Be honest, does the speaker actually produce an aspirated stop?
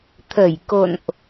yes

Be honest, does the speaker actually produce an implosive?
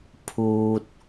no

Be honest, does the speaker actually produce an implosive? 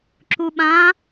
yes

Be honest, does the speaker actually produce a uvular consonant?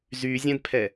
no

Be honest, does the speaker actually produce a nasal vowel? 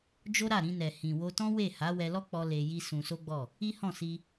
yes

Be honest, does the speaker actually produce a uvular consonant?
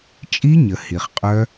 yes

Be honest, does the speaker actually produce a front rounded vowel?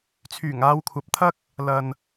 yes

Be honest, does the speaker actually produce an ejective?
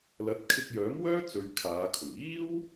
no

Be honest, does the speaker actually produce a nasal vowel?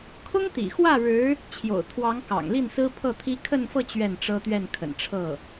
no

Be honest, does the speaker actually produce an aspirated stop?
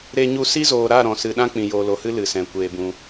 no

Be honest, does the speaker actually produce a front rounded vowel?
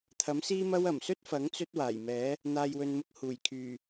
yes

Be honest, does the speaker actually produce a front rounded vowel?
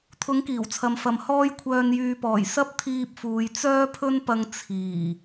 yes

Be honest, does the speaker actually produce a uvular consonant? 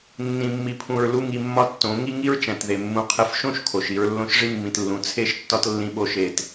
yes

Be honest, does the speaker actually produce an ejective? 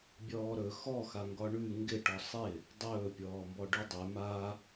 no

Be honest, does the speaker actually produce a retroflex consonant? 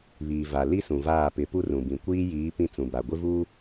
no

